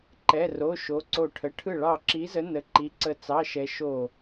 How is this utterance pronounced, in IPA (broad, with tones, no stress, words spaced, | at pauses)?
ǃɛ˧˥˧ro˧˥˧ ʃo˧˥ǀo˦˨ʈʰə˧˥˧ ʈʰɯ˦˨ ɭɑ˦˨ǁi˧˥zə˧˥ nə˧˥ ǃi˧˥ ǀə˦˨t͡sɑ˧˥˧ʃɛ˧˥ ʃo˦˨